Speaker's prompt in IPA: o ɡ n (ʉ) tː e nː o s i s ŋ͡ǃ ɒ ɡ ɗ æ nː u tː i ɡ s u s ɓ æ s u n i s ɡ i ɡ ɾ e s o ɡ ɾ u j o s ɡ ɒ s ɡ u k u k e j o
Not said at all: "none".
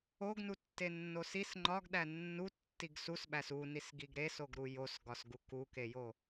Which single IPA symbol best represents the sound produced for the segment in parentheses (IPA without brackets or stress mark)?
u